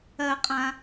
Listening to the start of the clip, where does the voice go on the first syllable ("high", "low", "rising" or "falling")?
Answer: low